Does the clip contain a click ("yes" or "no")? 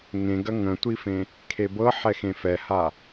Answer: no